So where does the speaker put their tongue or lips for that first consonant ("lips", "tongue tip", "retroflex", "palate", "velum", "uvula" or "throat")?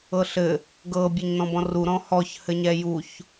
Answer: tongue tip